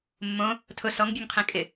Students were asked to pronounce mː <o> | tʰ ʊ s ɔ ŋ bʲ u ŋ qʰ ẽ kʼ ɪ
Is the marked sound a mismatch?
yes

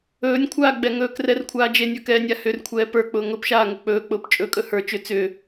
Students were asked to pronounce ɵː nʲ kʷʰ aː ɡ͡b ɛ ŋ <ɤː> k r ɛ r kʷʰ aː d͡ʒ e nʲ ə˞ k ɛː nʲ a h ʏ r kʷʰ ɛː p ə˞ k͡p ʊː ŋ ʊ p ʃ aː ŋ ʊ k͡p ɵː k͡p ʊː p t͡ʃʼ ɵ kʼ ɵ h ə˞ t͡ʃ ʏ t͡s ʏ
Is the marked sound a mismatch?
yes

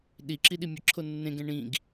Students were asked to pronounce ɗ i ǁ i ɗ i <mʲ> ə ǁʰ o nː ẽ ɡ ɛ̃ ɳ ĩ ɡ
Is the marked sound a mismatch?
no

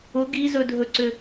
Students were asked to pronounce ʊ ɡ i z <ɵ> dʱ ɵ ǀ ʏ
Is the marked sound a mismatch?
no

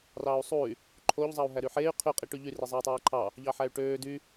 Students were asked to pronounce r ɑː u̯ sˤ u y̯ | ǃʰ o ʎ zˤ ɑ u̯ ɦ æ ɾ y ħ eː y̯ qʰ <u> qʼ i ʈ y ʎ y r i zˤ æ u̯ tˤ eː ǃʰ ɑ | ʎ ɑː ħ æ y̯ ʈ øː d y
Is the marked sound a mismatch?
yes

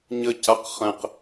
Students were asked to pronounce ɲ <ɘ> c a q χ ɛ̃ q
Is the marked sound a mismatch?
no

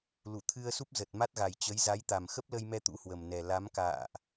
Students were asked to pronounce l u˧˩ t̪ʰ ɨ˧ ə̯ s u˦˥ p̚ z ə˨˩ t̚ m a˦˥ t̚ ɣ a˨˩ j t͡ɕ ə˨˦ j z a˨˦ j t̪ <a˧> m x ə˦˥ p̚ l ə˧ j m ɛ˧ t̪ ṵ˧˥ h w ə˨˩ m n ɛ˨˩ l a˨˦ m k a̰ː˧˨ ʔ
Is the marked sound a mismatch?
yes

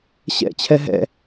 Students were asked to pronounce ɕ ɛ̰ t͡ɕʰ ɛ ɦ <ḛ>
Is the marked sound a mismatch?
yes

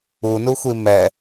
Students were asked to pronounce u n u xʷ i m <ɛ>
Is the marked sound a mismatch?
no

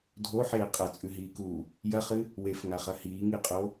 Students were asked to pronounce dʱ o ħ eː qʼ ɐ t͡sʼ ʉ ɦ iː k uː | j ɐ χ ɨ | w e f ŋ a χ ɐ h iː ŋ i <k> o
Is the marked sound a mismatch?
yes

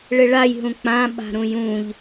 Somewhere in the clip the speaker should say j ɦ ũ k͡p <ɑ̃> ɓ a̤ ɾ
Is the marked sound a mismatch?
yes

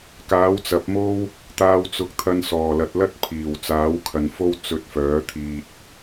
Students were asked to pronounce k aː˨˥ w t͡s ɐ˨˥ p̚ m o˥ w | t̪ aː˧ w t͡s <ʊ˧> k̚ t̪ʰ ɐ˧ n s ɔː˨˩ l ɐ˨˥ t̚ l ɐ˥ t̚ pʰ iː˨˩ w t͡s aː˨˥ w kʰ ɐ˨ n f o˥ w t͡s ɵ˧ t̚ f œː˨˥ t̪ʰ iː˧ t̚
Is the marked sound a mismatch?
no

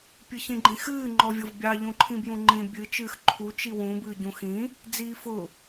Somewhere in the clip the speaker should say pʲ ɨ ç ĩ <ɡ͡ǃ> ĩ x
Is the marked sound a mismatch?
no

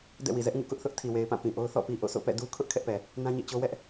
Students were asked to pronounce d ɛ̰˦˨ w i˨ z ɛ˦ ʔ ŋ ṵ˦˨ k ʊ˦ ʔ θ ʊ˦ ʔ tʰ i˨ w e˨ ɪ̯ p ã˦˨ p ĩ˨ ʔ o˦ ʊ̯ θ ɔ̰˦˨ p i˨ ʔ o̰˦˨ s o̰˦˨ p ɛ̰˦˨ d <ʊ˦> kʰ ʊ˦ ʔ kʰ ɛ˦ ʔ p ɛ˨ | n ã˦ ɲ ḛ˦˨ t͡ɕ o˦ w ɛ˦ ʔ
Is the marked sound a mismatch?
yes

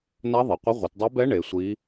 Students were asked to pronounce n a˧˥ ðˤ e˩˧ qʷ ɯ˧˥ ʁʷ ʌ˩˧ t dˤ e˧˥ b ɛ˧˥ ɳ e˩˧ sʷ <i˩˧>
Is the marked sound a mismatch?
yes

